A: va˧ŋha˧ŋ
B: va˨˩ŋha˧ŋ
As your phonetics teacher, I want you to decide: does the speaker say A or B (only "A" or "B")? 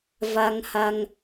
A